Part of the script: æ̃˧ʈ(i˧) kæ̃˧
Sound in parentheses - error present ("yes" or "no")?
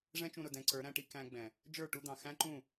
no